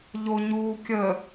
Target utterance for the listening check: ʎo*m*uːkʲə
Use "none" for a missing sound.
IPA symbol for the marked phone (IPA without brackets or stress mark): ɲ